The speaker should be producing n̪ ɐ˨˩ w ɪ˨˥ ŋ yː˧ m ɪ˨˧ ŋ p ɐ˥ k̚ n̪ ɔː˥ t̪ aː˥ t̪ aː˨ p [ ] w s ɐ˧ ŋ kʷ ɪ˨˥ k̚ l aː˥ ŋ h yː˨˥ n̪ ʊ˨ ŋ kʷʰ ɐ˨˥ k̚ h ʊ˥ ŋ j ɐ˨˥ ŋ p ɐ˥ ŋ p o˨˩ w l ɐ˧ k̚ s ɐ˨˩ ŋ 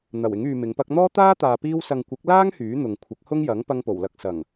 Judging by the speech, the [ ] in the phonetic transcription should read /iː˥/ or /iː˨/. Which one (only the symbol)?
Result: iː˥